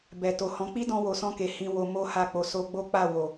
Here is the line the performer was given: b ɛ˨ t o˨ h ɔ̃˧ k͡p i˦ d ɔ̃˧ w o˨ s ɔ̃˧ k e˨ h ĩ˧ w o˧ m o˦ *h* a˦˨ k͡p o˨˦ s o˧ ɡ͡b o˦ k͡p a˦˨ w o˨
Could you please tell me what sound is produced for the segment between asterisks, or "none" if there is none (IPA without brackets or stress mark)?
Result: h